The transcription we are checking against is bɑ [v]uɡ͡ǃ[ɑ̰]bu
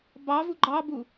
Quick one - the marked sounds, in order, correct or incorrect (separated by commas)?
correct, incorrect